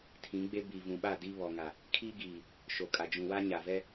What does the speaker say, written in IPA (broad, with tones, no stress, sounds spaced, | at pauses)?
tʰ ĩ˨˦ ɡ͡b e˦ b i˨ v ũ˨ ɓ a˦˨ d i˦ β ɔ˨ ŋ a˨ | kʰ i˦ ɡ iː˨ | ʃ o˨ kʼ a˨ d͡ʒ ũ˨ w a˦ ɲ a˨ v ɛ˦